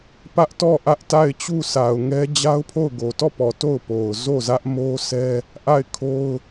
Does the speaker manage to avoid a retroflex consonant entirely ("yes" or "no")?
yes